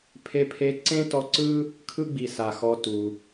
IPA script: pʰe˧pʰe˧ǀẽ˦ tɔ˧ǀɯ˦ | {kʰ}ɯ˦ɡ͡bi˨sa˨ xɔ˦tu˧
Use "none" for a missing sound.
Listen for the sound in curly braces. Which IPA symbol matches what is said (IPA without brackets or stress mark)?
kʰ